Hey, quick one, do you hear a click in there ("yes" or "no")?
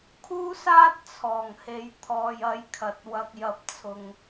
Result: no